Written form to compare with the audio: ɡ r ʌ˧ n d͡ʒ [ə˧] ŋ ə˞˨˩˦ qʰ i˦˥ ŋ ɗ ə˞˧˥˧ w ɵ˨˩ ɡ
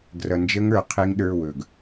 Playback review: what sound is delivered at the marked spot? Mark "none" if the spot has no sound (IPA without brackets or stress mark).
ə˦˥